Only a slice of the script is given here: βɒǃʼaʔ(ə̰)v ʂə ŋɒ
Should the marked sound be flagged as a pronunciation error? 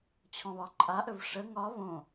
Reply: yes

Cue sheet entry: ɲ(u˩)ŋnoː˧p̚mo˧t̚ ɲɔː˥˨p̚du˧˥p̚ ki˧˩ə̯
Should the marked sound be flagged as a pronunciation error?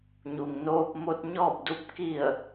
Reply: no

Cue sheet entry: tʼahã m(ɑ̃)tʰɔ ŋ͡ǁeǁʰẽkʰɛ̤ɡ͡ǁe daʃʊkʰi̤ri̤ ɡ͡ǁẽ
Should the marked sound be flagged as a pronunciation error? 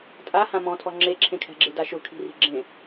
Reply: yes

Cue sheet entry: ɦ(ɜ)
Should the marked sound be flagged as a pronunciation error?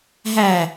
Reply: yes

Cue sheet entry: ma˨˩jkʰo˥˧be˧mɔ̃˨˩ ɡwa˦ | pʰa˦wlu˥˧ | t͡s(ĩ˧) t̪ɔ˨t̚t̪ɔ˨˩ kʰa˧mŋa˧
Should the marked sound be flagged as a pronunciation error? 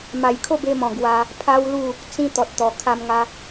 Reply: no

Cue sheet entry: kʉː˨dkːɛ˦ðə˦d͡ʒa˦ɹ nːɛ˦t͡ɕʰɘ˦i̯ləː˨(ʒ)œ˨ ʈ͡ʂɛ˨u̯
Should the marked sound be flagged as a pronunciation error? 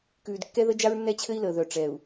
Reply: yes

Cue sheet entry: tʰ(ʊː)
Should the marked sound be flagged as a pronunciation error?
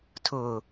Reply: no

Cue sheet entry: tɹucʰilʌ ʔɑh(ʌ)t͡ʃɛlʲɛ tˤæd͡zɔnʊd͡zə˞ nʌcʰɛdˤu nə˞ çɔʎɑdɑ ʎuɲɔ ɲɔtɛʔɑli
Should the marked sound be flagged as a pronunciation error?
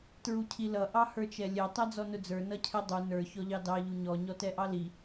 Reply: yes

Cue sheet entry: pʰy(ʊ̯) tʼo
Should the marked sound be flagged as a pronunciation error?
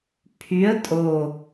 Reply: yes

